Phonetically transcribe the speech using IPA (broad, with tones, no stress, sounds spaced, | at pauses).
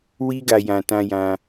w i˦ ɡ a˧ j ã˧ t ã˧ j ã˧